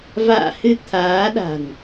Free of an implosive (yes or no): no